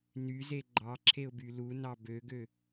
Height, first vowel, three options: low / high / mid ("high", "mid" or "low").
high